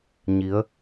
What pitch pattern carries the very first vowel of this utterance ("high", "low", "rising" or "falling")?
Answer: rising